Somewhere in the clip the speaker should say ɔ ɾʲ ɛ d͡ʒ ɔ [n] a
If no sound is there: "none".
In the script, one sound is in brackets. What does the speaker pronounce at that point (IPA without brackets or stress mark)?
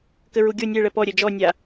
nʲ